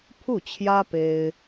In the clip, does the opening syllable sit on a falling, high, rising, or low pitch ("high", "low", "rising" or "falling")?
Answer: falling